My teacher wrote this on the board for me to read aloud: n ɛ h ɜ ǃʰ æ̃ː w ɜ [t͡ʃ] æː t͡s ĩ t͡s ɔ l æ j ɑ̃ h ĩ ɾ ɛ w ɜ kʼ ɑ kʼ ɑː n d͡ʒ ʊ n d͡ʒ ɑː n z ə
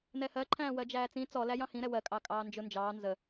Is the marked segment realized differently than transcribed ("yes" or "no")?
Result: yes